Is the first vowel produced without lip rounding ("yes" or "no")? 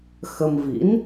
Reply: yes